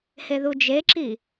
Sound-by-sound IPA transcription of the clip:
h e ð u d͡ʒ e ǁ i

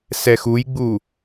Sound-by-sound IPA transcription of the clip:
s ɛ x u j ɡ͡b u

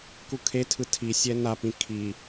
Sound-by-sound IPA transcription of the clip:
k u kʰ e tʰ ɯ tʰ i sʲ ɛ n a p ĩ kʰ i

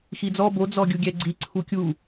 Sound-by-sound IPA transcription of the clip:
x i d͡z ɔ b o d͡z ɔ ɡʲ u ɡʲ ɛ ɡ͡ǀ i ǀʰ u kʲ u

